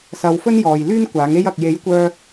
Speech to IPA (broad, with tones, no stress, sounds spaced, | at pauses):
s ɐ˨ w f ɵ˥ n j ɔː˨ j l yː˥ n kʷ aː˨˥ ŋ e˥ j ɐ˨ k̚ j e˨˥ j kʷ œː˧